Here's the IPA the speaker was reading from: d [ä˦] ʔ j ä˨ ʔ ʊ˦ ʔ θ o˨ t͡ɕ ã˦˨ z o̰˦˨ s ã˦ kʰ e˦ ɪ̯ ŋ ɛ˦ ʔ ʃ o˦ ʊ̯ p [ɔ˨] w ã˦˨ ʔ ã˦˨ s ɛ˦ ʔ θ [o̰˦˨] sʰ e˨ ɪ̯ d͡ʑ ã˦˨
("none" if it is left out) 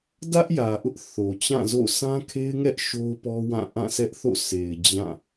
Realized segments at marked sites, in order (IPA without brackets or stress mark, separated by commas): ä˦, ɔ˦, o̰˦˨